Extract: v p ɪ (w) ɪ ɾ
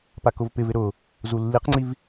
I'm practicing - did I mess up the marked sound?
yes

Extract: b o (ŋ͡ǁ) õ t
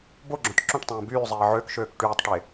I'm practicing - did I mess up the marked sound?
yes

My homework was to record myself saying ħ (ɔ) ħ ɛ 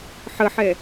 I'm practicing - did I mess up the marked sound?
yes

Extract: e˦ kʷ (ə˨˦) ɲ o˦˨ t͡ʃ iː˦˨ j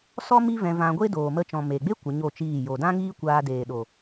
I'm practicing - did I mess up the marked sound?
no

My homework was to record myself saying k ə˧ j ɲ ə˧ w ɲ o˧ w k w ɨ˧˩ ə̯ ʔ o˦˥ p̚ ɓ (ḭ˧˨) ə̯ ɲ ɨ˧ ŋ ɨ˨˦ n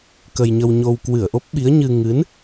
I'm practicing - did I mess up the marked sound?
yes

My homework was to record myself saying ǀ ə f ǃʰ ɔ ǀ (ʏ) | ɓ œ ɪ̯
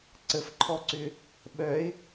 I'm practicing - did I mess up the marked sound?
no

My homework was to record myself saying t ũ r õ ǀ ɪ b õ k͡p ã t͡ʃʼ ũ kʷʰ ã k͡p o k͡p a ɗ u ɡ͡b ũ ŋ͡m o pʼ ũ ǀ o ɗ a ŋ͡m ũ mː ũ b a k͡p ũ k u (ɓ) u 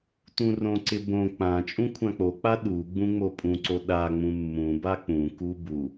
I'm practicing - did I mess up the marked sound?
yes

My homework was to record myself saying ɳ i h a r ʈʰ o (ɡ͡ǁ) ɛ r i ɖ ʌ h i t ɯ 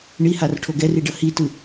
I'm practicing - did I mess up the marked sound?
yes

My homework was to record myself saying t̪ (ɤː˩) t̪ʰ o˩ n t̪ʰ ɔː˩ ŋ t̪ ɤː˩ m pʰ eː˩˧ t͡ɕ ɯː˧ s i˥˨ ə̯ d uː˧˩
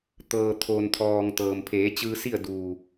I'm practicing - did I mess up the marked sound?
no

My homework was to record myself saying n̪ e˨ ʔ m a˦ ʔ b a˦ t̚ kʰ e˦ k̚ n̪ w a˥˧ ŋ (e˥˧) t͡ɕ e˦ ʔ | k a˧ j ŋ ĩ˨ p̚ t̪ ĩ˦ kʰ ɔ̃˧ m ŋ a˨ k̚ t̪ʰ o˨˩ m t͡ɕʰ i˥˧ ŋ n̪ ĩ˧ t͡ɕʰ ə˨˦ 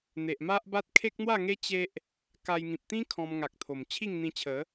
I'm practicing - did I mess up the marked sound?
yes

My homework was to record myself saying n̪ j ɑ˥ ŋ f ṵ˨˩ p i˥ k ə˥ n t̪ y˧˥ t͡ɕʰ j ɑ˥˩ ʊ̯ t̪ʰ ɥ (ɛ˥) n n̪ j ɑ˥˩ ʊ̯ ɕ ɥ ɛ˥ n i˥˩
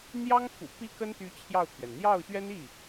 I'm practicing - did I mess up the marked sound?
yes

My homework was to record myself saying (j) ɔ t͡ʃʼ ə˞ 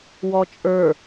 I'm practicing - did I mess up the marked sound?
yes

